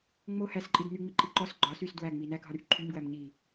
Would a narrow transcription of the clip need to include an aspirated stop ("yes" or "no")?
yes